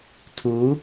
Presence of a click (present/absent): absent